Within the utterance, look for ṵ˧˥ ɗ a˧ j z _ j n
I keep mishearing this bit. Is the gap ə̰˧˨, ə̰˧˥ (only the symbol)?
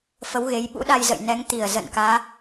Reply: ə̰˧˨